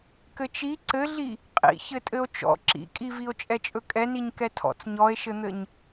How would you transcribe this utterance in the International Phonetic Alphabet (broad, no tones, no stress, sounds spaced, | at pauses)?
k ɘ t͡ʃ i ǀ ɘ ɮ i | qʼ ḭ ç ɘ tʼ ɘ o̯ t͡ʃ ɔ̰ ǁ ḭ kʼ i v i o̯ t͡ʃʼ ɛ t͡ʃʼ ɵ kʼ ɛ n i ɲ k ɛ tʰ ɔ̰ t͡s ɲ ɔ e̯ ʃ ɘ n̪ ɘ ɲ